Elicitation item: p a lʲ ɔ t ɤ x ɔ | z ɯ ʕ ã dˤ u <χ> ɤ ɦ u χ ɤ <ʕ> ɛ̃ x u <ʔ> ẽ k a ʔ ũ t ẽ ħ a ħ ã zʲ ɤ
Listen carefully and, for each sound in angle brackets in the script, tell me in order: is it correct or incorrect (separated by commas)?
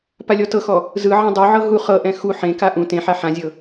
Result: incorrect, incorrect, incorrect